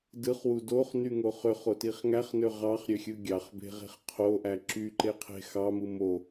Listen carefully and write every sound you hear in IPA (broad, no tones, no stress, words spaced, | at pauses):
dɯχwu doχnyŋo χøχotiχ ŋæχnø ʁɑχɾʲøxʲɯ ɡʲɑχbe̤ʁe̤χ qʰoʔæ ǁyǃeqʰe̤ xɑmɯ mo